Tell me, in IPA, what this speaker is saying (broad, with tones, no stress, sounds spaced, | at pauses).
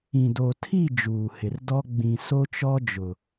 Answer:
ĩ˨ d o˨ tʰ i˦˨ d͡ʒ uː˨ h ɪ˨ r d ɔ˦ ɡ͡b ĩ˨ s o˦ t͡ʃ ɔ˦ d͡ʒ ʊ˨